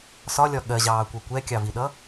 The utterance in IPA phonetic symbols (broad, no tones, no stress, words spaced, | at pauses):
sɒlʲɒ ɠɜʑɑːkʷʌ kʷɛkʲɑviɗʌ